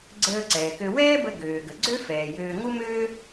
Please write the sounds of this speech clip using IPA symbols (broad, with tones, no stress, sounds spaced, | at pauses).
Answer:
ɡ͡ǀ əː˧ ǀ ɛː˩ k ø˧ w ɛː˥ b ə˧ ɡ øː˩ ɡ ə˩ ɡ͡ǀ ø˥ f ɛː˩ j øː˧ ŋ u˥ m øː˥